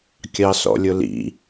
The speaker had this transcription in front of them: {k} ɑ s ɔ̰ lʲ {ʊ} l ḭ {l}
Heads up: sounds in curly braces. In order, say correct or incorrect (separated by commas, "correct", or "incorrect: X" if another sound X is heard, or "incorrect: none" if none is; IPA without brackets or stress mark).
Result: incorrect: kʲ, correct, incorrect: none